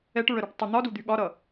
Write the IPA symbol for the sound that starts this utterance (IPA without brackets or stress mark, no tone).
ɛ